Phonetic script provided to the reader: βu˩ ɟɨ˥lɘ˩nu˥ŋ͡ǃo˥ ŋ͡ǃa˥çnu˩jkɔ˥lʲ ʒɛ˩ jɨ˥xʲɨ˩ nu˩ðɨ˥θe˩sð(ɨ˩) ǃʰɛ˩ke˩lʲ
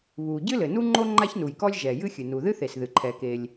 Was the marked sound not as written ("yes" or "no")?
no